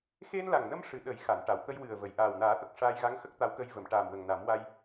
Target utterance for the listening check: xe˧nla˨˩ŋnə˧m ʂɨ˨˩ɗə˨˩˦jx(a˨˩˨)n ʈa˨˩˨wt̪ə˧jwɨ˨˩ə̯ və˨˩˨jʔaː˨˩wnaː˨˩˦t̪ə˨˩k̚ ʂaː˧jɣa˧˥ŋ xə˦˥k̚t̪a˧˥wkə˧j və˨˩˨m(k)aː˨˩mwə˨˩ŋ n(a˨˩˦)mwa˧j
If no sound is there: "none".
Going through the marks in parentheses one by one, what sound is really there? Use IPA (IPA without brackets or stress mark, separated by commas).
a˨˩˨, ʈ, a˨˩˦